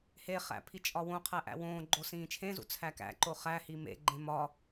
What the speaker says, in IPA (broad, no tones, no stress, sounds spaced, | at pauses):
h e χ æ̰ pʰ i t͡ʃʼ ɒ w õ qʰ æ ʔ æ̰ w õː ɡ͡ǃ o s ĩː t͡ʃʰ ẽ z ṵ t͡sʰ æ k æ̰ ǃ o χ æ h i m ḛ ɡ͡ǃ ẽ m ɒ